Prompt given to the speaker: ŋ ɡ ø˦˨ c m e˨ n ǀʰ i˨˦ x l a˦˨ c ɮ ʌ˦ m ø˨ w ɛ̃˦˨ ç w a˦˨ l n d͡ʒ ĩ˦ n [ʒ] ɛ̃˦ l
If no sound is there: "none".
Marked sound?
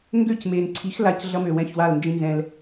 z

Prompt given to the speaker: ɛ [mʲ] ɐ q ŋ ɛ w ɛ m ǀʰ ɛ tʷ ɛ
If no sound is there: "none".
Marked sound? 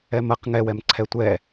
m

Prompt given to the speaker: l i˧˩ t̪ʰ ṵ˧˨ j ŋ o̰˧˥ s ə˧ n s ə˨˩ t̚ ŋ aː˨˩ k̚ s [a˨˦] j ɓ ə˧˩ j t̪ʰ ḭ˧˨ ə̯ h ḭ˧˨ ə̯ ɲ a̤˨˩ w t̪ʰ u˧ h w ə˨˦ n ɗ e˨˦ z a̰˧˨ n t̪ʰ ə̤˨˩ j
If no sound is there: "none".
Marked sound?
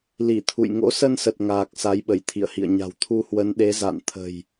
a˨˦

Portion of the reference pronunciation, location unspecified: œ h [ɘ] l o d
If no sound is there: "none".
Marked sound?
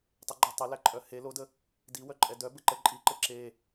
e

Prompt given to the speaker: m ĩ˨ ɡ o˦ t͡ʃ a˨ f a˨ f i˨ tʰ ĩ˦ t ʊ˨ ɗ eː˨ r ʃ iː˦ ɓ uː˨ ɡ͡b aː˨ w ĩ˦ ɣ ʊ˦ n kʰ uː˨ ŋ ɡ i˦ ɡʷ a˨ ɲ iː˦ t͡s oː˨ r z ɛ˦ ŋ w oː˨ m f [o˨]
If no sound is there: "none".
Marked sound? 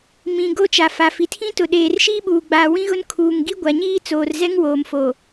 o˨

